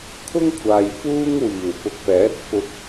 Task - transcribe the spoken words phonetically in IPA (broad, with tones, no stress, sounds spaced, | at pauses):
kʰ ʊ˥ ŋ kʷʰ aː˨ j f uː˥ ŋ w iː˨˩ w p ʊ˨ k̚ p ɛː˨˥ t̚ f ʊ˧ k̚